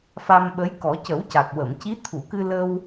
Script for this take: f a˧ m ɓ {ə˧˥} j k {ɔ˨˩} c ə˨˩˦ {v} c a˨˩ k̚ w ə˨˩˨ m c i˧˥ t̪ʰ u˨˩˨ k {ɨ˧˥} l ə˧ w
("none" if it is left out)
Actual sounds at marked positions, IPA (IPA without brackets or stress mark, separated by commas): ə˧˥, ɔ˨˩˦, w, ɨ˧